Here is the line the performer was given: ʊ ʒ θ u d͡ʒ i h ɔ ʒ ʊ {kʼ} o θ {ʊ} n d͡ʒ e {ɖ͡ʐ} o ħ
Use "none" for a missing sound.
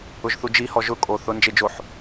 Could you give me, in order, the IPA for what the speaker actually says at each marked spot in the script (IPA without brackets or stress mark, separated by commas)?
kʼ, ʊ, d͡ʒ